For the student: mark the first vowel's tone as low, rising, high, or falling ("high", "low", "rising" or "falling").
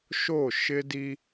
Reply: falling